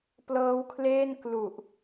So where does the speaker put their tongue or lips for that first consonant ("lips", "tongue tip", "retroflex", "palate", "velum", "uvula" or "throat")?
lips